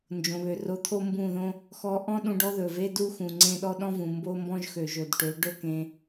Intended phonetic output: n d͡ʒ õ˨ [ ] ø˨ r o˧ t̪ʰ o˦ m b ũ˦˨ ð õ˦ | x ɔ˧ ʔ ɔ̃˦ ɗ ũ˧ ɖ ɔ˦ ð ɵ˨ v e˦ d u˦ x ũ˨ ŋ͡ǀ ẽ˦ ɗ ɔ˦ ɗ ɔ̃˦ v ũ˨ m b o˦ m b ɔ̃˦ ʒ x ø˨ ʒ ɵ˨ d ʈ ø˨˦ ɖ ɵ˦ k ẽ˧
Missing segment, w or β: β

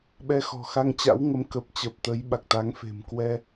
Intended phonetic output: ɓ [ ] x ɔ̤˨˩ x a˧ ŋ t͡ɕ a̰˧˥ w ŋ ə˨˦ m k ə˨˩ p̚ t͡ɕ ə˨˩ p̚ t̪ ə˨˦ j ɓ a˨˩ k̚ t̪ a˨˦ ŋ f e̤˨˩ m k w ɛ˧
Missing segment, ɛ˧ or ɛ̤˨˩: ɛ˧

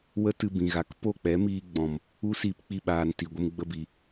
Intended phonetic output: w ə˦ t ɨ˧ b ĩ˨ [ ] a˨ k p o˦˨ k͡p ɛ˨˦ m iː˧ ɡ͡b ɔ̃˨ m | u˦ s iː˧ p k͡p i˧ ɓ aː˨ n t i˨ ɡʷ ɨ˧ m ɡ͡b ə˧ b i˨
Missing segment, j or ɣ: ɣ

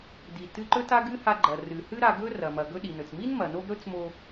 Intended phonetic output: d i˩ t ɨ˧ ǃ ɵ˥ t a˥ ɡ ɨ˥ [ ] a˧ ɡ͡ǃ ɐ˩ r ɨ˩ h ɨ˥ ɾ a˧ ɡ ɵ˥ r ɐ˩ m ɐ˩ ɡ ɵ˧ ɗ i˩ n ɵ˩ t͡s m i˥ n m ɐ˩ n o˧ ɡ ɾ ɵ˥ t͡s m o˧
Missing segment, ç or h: h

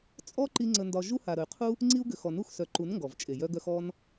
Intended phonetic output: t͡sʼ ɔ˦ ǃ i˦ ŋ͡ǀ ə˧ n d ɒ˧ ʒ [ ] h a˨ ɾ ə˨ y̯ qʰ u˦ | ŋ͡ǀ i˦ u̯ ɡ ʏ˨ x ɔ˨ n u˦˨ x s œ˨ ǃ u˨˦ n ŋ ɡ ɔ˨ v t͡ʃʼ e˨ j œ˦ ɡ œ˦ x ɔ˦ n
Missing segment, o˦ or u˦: u˦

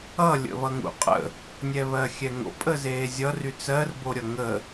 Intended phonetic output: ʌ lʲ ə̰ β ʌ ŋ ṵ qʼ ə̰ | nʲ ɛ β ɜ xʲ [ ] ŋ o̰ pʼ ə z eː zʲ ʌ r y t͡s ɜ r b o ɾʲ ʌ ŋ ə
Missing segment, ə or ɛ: ɛ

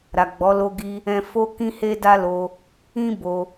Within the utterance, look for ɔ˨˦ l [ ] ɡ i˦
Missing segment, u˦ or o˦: o˦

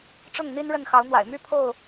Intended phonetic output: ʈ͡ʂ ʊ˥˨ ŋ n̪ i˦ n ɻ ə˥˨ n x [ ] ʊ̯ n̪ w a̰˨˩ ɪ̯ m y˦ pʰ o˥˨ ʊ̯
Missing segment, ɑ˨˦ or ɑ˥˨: ɑ˨˦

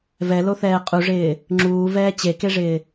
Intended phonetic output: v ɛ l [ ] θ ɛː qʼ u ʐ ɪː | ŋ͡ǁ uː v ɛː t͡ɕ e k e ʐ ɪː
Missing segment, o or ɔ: o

